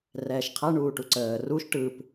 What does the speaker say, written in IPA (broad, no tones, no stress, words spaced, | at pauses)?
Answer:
rɛːʃqʰa ɳuːʈuǀəː ruʃ ʈɯp